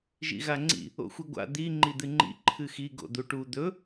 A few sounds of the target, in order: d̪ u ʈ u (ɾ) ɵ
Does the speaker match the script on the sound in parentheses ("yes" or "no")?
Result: no